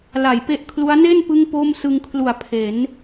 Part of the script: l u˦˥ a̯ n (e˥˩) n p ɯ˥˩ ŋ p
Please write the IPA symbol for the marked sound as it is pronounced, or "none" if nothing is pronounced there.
e˥˩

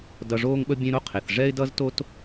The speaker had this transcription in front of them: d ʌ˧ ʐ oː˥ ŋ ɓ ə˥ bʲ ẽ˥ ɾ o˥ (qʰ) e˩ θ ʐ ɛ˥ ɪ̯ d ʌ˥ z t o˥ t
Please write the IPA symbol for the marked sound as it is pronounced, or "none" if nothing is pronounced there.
qʰ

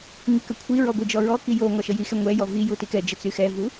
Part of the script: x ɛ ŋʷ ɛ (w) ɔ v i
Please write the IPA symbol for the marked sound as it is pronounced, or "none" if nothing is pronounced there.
j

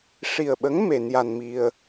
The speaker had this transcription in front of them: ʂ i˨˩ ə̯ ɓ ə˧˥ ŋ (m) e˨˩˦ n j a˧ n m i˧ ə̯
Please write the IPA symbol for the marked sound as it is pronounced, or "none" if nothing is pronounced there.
m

